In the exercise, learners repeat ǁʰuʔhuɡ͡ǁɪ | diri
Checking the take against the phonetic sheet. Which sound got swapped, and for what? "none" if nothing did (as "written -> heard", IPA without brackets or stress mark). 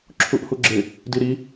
r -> ɾ